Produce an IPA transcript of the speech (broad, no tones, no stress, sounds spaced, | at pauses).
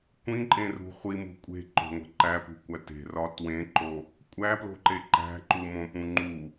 kʷ ĩ ǃʼ ẽ r ṳ χʷ i m ṳ kʷʼ e̤ ǃ o̤ ŋʷ e̤ ǃ æ p ṳ kʷ æ t e̤ r ɒ t w ẽ ǃ o | kʷʼ æ p l o̤ ǃ e ǃ æ̤ ǃ u m õ p ũ ŋ͡ǃ u